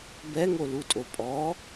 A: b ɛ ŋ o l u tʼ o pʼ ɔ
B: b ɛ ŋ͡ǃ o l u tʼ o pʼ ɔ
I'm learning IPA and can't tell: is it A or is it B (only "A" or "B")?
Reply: A